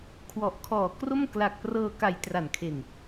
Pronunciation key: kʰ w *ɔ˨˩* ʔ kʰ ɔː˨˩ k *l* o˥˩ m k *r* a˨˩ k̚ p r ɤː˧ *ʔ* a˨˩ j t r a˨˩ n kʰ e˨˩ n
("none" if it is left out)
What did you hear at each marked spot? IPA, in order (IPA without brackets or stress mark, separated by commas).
ɔ˨˩, r, l, k